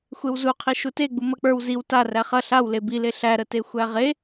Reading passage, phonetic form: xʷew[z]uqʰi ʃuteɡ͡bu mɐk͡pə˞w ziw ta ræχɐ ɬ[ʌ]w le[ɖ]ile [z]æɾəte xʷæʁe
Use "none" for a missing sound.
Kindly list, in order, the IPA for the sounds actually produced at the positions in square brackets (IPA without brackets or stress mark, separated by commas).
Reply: z, a, b, ɬ